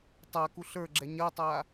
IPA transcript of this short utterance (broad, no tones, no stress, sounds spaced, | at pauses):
tˤ a k u ɬ ə˞ ɡ͡ǁ ɛ ɲ ɐ tˤ a